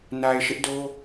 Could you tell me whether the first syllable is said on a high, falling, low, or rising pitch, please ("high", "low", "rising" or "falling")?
low